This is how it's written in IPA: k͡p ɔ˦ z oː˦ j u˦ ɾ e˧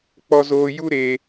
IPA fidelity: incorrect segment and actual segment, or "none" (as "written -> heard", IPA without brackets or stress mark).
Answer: none